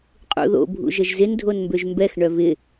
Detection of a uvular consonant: present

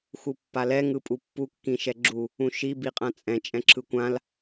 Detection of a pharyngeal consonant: absent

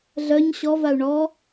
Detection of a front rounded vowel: present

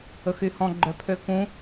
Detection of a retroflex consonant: absent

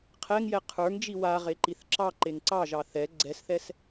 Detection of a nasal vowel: absent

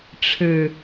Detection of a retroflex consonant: present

